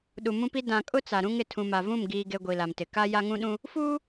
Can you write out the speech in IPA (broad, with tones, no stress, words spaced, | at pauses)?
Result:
ɗu˨mũ˦pi˦ dã˨kʼʊ˦ t͡sa˨ɾũ˦ŋ ɪ˨tʰũ˨ma˨ vũ˦˨m ɡiː˨ ɡe˦ɡʷi˨la˨mtɪ˨ ka˦ ja˦ŋũ˦ɗũ˦ | fuː˦